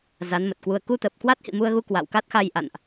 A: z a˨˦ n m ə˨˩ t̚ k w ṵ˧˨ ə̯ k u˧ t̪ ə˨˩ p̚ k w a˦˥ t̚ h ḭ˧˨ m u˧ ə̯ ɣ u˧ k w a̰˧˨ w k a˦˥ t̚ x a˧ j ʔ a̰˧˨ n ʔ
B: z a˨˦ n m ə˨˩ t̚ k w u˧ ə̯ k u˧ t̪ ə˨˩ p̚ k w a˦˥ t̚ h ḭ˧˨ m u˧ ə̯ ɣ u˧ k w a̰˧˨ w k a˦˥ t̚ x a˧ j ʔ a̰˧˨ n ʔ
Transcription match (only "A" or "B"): B